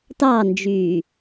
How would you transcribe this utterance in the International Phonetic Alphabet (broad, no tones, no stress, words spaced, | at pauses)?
tɑnd͡ʒyː